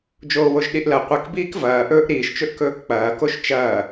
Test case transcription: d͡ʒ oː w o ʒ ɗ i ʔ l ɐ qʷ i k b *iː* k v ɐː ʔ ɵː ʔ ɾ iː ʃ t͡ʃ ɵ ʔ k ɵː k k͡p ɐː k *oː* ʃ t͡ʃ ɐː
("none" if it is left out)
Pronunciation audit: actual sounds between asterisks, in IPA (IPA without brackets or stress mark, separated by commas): iː, o